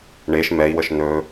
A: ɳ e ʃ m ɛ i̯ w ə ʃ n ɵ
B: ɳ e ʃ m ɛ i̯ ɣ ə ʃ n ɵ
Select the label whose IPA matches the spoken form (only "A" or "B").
A